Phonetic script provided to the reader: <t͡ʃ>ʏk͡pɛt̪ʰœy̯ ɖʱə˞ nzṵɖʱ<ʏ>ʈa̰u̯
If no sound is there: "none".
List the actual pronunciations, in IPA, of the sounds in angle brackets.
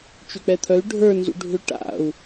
t͡ʃ, ʏ

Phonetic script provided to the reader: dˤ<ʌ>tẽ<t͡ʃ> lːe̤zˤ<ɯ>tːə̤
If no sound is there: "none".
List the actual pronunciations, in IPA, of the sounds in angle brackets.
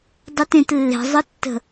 ʌ, t, ɯ

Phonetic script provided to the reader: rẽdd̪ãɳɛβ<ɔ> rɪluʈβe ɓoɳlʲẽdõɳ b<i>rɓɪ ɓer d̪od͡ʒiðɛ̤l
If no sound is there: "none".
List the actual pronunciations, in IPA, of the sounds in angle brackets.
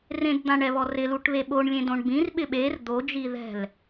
ɔ, ĩ

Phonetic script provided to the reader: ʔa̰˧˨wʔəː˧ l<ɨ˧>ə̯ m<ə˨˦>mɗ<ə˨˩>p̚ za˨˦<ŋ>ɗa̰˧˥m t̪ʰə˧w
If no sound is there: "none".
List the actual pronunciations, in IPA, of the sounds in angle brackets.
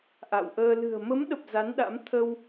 ɨ̤˨˩, ə˨˦, ə˨˩, n

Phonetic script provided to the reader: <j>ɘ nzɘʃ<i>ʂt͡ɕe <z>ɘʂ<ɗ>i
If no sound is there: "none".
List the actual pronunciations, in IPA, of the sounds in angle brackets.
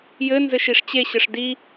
j, i, ɕ, d

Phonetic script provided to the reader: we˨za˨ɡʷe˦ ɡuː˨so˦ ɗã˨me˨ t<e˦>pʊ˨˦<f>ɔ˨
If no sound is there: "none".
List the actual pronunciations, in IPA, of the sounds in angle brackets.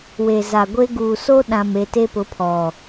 e˦, pʰ

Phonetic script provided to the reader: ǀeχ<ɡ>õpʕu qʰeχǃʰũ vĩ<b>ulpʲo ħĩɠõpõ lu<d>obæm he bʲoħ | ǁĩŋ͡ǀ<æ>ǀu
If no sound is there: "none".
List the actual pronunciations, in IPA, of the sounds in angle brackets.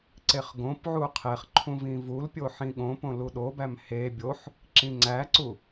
ɡ, v, ɗ, æ

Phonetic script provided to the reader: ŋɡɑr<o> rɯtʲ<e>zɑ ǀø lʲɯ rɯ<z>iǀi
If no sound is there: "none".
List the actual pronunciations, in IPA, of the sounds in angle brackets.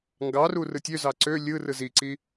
u, ø, z

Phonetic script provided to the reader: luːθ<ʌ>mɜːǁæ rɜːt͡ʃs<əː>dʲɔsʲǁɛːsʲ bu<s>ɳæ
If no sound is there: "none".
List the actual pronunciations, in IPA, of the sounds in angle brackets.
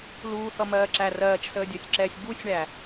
ʌ, əː, sʲ

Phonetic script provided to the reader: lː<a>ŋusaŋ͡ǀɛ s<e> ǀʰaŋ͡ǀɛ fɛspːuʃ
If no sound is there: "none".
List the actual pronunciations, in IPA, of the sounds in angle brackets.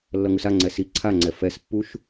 ʌ, i

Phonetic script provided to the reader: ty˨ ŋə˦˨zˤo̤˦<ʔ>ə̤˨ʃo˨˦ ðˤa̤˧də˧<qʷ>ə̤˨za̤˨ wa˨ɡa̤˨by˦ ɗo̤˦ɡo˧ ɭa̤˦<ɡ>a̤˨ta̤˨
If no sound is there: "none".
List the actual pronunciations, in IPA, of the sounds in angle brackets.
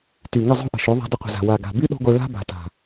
ʔ, qʷ, b

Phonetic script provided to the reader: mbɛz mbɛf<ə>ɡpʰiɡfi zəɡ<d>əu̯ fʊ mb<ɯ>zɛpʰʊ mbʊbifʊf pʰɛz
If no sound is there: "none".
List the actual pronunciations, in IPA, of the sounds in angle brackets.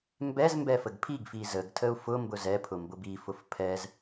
ə, tʰ, ʊ

